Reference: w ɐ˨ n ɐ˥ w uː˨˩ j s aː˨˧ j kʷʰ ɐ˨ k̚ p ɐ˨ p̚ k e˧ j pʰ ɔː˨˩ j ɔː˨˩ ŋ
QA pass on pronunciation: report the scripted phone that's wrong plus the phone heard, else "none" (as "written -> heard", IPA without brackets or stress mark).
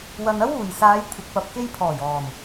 none